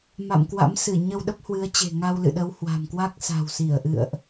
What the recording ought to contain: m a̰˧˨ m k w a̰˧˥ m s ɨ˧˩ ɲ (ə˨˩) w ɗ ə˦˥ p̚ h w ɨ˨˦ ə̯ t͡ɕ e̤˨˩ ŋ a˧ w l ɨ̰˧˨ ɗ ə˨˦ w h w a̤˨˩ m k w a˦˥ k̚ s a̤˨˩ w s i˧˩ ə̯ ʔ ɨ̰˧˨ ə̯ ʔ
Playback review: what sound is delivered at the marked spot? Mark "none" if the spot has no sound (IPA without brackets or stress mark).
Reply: ə˧